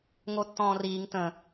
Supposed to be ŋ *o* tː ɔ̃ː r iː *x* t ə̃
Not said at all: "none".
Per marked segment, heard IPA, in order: o, ŋ

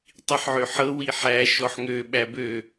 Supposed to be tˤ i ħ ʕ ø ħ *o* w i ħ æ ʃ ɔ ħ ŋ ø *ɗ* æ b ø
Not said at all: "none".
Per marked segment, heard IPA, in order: ɤ, ɓ

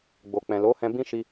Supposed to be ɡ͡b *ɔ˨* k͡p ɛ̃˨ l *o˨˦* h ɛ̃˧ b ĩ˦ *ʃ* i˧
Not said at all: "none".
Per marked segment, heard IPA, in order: o˨, o˨˦, ʃ

